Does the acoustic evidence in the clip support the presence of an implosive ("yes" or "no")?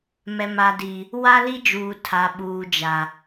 yes